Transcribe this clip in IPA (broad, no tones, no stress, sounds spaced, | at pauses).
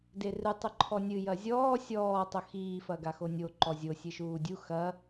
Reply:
d e r ɨ tˤ ɨ ǃʰ ɔ nʲ ɨ j ɐ zʲ ɔː sʲ ɔː tˤ o x iː f ɐ ɡ a x o nʲ o ǃ ɔ zʲ o sʲ ɨ ʃ uː dʲ u x ɐ